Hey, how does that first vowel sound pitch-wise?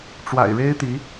low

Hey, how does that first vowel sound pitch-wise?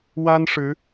high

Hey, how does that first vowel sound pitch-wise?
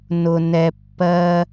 low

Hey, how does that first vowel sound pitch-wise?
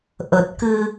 low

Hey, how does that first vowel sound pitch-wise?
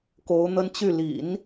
rising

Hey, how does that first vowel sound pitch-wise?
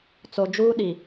low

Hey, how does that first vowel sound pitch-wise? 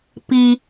low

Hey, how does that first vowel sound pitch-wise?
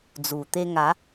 low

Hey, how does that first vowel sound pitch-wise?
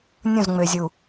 falling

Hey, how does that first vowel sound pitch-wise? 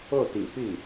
falling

